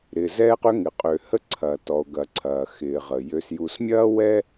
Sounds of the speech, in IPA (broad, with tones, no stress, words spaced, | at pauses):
ɾɪː˩zɛː˧qʏ˧ ŋɪ˩qʼø˩hə˧ ǀʰɐː˩tɔ˩o̯ɡɐ˩ ǀʰɐː˩xɪː˩ʁə˩ jø˩sju˩smʲɐː˥ wɛ˥